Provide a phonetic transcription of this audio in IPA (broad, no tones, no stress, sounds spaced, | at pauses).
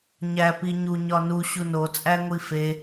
ɲ æ p i ɲ u ɲ ɒ n u ɕ u n o t͡sʼ æ ŋʷ i f e